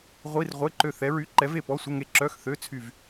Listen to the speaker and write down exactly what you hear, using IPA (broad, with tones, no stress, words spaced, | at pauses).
ʁʷi˧˥˧r ʁʷe˧˥˧ǃø˦˨θɛ˧˥ɹy˧˥˧ ǃɛ˧˥ve˦˨pɔ˧˥˧sʷə˧˥˧ ŋe˦˨ǁœ˧˥˧x θø˧˥˧t͡sʰy˦˨v